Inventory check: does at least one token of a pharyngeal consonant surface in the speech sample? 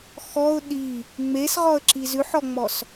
yes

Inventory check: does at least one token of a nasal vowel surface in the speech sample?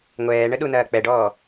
no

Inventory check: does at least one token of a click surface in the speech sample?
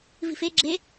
yes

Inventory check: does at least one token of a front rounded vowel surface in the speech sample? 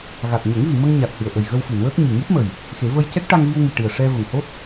no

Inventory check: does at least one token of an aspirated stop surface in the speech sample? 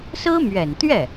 no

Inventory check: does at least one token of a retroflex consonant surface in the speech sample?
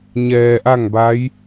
no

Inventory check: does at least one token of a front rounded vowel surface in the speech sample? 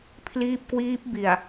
no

